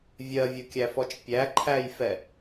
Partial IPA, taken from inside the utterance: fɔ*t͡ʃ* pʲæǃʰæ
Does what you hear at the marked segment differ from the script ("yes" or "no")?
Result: no